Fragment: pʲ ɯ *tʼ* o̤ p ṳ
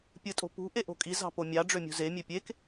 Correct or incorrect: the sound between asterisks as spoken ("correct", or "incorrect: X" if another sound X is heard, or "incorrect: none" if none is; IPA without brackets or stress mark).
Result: correct